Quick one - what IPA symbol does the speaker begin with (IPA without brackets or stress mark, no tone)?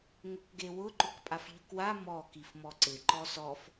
ŋ